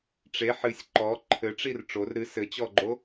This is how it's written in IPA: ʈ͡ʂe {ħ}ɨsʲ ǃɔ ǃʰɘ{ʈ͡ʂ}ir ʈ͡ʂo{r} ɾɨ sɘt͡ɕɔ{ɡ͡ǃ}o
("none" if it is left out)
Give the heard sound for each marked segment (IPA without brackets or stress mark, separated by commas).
ħ, ʈ͡ʂ, r, ɡ͡ǃ